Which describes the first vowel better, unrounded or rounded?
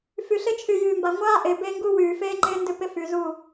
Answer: rounded